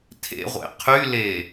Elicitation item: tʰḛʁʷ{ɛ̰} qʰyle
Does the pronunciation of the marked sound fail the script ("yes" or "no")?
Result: yes